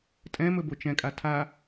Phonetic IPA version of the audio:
tʼ ɛ̃ m ɵ b o t͡ʃ ɛ̃ kʼ a tʰ a

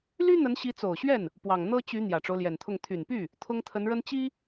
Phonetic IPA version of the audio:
l y˥ n̪ ə˧˥ n ɕ i˧˥ t͡s o˨˩ ʊ̯ ɕ ɥ ɛ˥˩ n | p w ɑ˨˩ ŋ n̪ ɤ˥ t͡ɕ y˧˥ n̪ j ä˨˩ ʈ͡ʂ o˦ ʊ̯ l j ɛ˨˩ n t̪ʰ ʊ˥˩ ŋ t̪ʰ y˨˩ n p y˥˩ | t̪ʰ ʊ˥ ŋ t̪ʰ ə˧˥ n ɻ ə˥ n t͡ɕ i˥

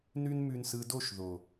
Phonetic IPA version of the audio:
n ʉ˦ n m ʉ˧ n s ɯ˧ d o˦˨ ʃ ð o˨

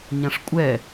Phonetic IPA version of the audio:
ɲ ã ʂ kʷʼ ɛ

